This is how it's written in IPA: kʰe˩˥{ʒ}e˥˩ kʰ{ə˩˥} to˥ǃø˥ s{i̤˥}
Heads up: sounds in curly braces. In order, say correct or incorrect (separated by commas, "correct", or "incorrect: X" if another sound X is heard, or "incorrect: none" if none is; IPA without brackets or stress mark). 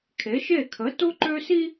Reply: incorrect: ʃ, correct, incorrect: i˥